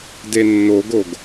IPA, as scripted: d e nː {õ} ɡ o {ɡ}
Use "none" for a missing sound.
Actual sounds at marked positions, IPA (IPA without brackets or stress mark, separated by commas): o, ɡ